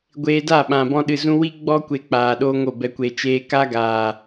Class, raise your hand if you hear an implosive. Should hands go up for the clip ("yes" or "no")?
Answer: yes